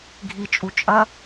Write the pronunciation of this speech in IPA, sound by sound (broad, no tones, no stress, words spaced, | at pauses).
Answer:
ɡʱit͡ʃʼu t͡ʃʼɐ